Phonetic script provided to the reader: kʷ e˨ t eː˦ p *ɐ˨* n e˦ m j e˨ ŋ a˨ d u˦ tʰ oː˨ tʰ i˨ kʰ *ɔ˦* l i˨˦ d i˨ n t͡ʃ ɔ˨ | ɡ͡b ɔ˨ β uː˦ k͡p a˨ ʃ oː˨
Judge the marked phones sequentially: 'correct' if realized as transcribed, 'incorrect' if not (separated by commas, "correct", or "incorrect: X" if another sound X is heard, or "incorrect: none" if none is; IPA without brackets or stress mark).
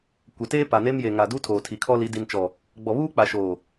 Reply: incorrect: a˨, correct